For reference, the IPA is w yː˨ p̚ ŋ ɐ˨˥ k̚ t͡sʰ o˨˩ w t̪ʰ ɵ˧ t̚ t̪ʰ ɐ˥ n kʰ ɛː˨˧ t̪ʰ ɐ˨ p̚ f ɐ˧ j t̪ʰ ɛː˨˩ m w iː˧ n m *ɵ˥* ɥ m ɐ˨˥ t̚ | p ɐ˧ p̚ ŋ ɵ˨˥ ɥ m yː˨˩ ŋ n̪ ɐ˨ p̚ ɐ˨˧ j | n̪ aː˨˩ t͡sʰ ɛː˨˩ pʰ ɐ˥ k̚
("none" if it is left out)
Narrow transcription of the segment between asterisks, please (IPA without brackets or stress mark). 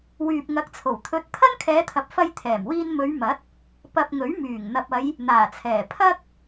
ɵ˨˧